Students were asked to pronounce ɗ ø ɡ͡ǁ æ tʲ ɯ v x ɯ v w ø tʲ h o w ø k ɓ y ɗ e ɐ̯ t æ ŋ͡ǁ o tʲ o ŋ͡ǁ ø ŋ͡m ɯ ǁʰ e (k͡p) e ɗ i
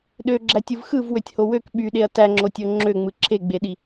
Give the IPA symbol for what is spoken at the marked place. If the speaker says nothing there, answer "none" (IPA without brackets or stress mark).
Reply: ɡ͡b